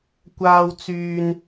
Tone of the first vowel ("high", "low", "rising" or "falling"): high